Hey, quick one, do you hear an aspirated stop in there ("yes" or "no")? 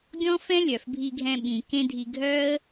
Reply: no